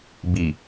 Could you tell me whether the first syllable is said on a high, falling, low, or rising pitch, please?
low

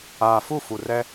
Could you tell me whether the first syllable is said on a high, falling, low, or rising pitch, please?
low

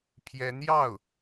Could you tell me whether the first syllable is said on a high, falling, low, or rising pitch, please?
rising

